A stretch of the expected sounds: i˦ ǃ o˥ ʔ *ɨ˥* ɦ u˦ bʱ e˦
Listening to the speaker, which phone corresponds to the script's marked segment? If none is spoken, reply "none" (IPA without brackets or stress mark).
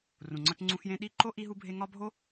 i˥